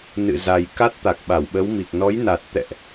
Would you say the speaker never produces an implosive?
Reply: no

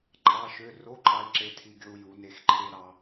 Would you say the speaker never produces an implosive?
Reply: yes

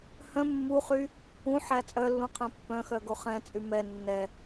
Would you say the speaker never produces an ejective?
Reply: no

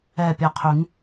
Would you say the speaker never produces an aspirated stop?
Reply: no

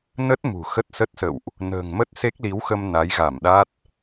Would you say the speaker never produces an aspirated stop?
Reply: yes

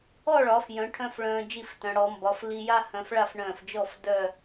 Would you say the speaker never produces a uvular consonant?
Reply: yes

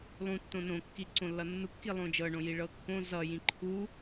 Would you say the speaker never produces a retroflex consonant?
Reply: no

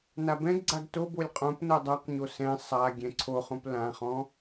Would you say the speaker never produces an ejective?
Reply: no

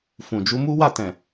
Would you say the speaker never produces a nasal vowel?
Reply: no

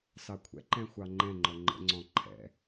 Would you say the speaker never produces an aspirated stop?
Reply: no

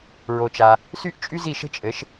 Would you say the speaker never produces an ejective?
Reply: no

